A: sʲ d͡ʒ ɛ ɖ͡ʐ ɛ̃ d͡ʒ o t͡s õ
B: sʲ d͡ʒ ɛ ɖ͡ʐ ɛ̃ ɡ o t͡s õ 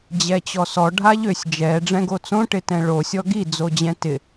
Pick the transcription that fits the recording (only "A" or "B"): B